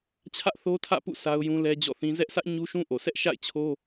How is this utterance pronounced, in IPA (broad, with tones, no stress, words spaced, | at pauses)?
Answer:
t͡ɕʰä˦ʔθo˦tʰä̰˦˨pṵ˦˨ sʰa˦ʊ̯jũ˦lɛ˦ d͡ʑɔ̰˦˨θĩ˦ zɛ˦ʔsä˦ʔ ɲu˦ʃũ˦ ʔo˨sɛ˦ʔ ʃa̰˦˨ɪ̯t͡ɕʰo˦